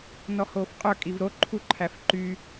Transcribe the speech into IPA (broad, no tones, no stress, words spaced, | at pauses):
nɔhoːfqʼœ kʼivɾo ǃʰuǃʰæfǃy